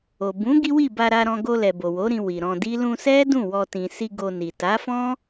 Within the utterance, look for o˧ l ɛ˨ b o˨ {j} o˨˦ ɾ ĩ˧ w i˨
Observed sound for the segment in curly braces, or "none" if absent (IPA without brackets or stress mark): w